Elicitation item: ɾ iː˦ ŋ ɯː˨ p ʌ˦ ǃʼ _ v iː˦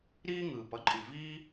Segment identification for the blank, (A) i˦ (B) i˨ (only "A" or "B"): B